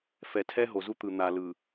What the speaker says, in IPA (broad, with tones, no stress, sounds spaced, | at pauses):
f ɛ˨ tʰ ɛ˦ ɦ o˨ z u˦ t̪ ɯ˨ n̪ a˨ l ɯ˨